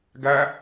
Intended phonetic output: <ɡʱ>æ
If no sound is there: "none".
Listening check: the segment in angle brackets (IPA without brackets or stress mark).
ɡ